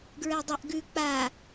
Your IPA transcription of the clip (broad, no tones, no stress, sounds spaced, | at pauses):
ɡ ɹ ɛ dˤ a ʔ ɡ ʉ k͡p a